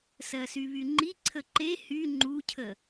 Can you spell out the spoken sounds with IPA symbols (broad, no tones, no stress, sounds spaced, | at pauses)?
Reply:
s ɜ s y β y ŋ͡ǃ i ǀʰ ə ǃ e h y ŋ͡ǃ u cʰ ə